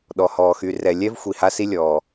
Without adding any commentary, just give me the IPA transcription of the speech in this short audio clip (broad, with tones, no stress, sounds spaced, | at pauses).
ɗ ɔ˩ h ɔː˩ x y˨ r ɛ˨ lʲ ɛ˥ v xʷ i˨ h a˥ s i˥ lʲ ɔː˩